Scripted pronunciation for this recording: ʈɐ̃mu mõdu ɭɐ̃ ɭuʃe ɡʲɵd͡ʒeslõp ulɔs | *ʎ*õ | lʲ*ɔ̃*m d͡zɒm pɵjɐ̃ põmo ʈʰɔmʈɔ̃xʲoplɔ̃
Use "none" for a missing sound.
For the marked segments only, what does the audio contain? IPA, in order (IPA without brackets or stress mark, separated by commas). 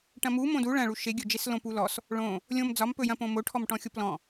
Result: ɭ, õ